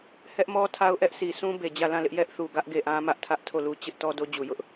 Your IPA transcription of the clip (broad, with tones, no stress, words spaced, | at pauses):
hɛ˦ʔmɔ˦ tʰa˦ʊ̯ʔɛ˦ʔsi˨ sũ˦ be˨ d͡ʑä˦˨ lã˦˨lɪ˦ʔ jɛ˦ʔθu˨ɡä˦ʔ ɡe˦˨ʔã˦ mä˦ʔtʰä˦ʔ tʰo˦˨lu˦ t͡ɕɪ˦ʔ tɔ˦do˦d͡ʑu˨ jʊ˦ʔ